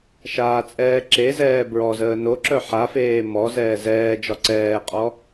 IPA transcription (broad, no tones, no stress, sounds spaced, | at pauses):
ʃ aː t͡sʼ ɛː ǁ e z ɛː b ɹ ɔ z əː n o ǁ œ ħ a f eː m ɔ z ɛː z ɛː d͡ʒ ɒ ǀ ɛː qʼ ɔ